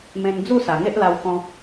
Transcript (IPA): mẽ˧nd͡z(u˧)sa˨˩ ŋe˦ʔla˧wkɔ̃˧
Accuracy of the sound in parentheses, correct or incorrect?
incorrect: u˥˧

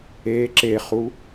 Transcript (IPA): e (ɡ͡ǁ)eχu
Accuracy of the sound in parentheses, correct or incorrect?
incorrect: ǁ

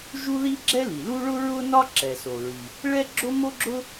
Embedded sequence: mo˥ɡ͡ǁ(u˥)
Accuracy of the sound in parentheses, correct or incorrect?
incorrect: ʊ˥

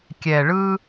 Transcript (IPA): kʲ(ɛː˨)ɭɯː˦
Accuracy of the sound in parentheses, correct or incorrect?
correct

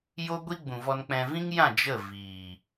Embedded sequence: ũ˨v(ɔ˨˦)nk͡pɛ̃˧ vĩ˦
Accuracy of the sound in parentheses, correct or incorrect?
incorrect: ɔ˧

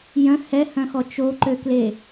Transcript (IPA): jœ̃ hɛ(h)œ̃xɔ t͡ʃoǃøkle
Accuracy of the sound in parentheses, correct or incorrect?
correct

